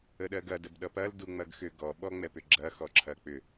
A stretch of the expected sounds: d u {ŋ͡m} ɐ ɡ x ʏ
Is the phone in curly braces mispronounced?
no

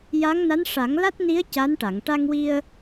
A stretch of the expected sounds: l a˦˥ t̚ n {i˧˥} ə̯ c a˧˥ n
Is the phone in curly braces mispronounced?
no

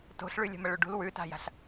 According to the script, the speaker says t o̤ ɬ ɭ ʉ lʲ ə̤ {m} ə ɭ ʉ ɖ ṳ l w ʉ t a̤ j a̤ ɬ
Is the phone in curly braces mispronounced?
no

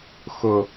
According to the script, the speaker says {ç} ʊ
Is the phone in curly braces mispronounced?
yes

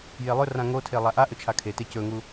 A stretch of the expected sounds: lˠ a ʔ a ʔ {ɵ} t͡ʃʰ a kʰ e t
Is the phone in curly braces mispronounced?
no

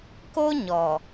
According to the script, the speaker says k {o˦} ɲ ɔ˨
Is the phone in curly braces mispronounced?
no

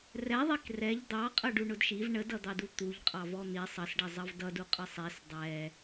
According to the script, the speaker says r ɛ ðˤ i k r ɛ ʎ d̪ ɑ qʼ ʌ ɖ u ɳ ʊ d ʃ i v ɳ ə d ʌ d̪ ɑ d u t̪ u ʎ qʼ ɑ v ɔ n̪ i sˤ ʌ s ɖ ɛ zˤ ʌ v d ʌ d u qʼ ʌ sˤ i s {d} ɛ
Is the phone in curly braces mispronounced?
yes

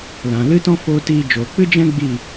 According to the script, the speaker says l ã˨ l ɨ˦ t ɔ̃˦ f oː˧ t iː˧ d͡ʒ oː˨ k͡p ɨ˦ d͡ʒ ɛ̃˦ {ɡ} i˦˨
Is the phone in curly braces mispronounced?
yes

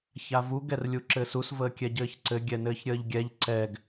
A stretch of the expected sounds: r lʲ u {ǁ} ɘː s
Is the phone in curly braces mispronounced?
no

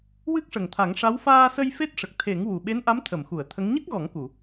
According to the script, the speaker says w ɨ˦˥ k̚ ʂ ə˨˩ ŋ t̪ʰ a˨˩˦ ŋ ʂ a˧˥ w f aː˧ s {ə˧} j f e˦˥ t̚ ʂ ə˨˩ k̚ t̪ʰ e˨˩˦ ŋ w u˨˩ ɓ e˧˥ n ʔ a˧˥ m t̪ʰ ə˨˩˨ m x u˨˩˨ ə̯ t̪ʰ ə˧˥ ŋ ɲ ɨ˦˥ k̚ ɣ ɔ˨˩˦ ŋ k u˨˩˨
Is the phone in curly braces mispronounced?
no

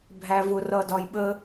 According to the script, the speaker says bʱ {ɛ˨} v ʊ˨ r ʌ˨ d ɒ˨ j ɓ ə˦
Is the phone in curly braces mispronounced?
yes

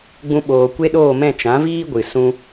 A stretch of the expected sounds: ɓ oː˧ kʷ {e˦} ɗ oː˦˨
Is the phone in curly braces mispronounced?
no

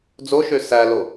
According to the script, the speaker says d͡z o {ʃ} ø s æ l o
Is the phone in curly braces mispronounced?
no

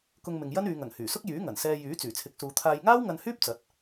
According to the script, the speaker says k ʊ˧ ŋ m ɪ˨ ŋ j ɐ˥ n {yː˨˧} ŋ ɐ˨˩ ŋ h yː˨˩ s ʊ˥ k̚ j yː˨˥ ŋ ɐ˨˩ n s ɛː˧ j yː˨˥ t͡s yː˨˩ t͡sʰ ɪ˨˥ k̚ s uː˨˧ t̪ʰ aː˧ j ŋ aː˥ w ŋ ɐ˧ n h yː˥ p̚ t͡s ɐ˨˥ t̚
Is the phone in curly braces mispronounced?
no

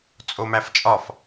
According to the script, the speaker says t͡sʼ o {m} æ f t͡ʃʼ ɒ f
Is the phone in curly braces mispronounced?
no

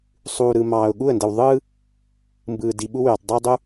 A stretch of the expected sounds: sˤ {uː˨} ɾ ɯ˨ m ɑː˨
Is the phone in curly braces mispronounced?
no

